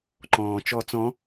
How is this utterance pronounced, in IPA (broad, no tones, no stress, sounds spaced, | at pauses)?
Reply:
ǃ ɔ̃ː t͡ʃ ɔ t͡s ɔ̃